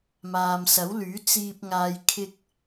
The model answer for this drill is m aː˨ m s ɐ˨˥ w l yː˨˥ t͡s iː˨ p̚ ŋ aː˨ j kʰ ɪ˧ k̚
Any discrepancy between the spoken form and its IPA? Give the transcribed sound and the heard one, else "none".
none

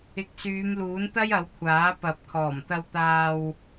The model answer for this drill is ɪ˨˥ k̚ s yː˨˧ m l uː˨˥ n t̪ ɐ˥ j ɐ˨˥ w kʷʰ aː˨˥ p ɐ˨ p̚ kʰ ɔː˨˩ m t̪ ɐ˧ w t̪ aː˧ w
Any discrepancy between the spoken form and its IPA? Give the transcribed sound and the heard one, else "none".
none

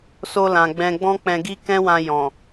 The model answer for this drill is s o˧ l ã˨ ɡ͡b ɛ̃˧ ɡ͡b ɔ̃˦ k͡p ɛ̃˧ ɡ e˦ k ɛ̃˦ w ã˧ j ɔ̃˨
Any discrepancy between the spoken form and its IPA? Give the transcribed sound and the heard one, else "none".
e˦ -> i˦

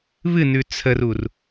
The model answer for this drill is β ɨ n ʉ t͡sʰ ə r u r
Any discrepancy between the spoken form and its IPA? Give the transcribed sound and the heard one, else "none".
none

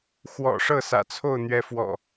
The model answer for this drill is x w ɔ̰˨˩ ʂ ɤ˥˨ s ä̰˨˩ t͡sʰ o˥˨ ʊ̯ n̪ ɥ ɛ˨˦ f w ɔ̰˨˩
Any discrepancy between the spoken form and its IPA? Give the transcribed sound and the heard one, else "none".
none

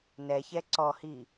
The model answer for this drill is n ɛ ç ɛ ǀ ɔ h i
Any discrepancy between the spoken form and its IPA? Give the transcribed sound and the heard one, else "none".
none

